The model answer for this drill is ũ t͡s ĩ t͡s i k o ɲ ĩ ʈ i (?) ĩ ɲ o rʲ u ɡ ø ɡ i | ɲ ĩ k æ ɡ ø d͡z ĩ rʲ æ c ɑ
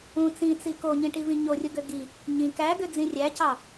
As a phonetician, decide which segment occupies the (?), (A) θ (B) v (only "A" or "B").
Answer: B